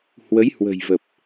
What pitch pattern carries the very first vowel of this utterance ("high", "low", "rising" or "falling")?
rising